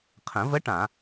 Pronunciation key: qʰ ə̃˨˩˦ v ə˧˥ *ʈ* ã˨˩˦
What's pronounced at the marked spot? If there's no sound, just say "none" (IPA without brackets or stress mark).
ʈ